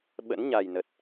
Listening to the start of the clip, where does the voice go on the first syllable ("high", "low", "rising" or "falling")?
rising